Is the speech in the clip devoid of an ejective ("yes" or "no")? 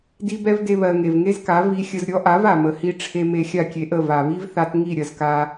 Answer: yes